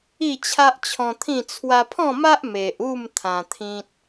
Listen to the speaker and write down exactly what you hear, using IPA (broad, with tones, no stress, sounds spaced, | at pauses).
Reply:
i˥˧ t͡ɕʰ a˦ ʔ t͡ɕʰ ɔ̃˧ t̪ʰ ĩ˥˧ t͡sʰ w a˧ pʰ ɔ̃˥˧ m a˦ ʔ m e˨ ʔ u˥˧ m t̪ʰ ã˧ t̪ʰ ĩ˦ t̚